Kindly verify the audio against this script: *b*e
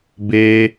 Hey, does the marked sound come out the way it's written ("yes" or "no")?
yes